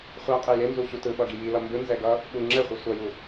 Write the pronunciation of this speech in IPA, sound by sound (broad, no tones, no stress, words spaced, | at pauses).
χʷa qʼɛjenzu ɕutɯɓʌ ɡijilʌ mbɯnzɛ ɡʌ | ɓu ŋ͡ǁɛχʷɯ sʷʌju